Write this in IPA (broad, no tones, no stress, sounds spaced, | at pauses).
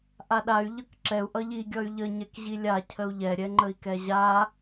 ʔ a ɗ a y̯ ʎ ʌ k ǁ ɛ u̯ ʔ ʌ ʎ i ɡʲ ʌ y̯ ʎ ə ɲ ɛ k ʑ i lʲ a cʰ ə u̯ ʎ ɛ ɾʲ ɛ ŋ͡ǃ ə i̯ k ɛ ʑ a